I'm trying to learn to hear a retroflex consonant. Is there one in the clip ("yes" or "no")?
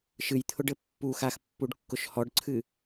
yes